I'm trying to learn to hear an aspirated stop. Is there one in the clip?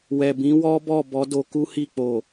no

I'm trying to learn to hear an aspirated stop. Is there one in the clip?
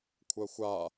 yes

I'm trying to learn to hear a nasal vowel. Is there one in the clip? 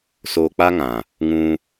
yes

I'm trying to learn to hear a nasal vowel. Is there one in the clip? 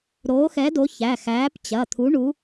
no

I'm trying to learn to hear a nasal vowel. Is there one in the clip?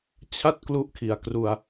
no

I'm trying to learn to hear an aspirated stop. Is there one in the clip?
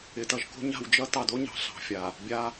no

